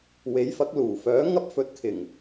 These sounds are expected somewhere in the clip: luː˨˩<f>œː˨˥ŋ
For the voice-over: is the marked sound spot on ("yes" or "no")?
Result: yes